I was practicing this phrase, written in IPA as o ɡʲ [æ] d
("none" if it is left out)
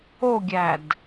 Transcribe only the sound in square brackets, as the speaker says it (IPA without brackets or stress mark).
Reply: æ